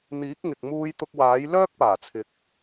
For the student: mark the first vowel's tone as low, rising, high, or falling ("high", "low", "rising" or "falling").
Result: rising